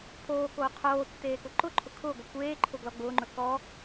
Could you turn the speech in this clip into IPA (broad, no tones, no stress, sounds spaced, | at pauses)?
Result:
pʰ oː k oː qʰ oː tː eː k ʊ ǃ ʊ ǃʰ ʊ kʰ ʊː ɡʷ ə kʷ eː ǃʰ ʊ ɡ l ɔ ɡ͡b ʊː ŋ͡ǃ ɵ k ɔ